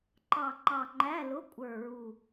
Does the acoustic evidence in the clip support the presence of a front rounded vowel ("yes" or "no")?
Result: no